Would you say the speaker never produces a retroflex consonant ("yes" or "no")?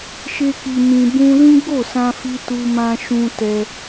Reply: yes